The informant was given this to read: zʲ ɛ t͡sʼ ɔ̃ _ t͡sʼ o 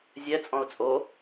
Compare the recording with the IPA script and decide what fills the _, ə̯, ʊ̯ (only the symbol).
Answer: ʊ̯